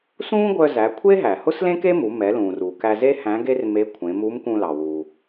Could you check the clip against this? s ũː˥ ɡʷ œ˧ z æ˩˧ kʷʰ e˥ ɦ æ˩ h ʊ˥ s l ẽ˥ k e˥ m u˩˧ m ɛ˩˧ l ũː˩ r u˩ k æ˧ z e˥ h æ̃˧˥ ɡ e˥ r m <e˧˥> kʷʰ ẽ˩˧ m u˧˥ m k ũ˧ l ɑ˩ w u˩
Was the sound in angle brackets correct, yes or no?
yes